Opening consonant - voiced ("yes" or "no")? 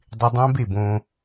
yes